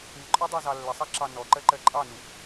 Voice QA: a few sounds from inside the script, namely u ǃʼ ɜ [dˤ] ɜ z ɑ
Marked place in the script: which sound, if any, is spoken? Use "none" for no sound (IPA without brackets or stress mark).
dˤ